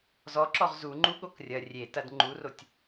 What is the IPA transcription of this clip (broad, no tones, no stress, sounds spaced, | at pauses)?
z ɔ ǁ ɔ ʁ z u ŋ͡ǃ u ɠ o k rʲ ɐ rʲ e t ɐ d ŋ͡ǃ u r o tʲ